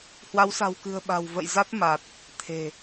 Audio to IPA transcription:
hwa˨˦wsa̤˨˩wkɨ̤˨˩ə̯ ɓa̤˨˩wvə̰˧˨jza˦˥t̚ ma˨˩t̚ | t̪ʰe̤˨˩

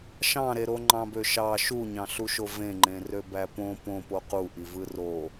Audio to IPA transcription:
ʃɑ̃ɾeɾo ŋ͡ǃɑ̃bøʃɑ ʃuɲɑ̃ɬuʃo vẽŋ͡ǃẽrø bæpõ põpo quʔivɯ ro

